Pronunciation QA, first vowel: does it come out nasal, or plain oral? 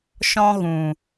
nasal